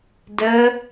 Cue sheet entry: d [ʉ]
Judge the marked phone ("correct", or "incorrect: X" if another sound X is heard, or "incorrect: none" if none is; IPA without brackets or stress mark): incorrect: ɘ